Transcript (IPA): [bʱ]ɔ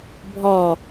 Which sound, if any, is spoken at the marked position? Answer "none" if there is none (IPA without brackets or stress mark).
bʱ